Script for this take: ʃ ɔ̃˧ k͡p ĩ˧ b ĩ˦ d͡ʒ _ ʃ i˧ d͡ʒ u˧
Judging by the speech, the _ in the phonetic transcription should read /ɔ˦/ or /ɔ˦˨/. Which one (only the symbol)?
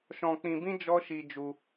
ɔ˦